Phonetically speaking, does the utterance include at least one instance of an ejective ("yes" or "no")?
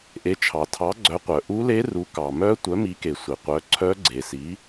no